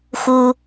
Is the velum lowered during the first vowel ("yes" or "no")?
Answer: no